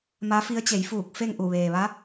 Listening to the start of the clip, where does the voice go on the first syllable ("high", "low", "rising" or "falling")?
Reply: rising